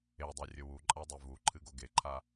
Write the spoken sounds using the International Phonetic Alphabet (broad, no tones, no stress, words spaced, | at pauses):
edˤe rʲɵwuǃʼadˤe vuǃʰɨɡo ɡeǃʰa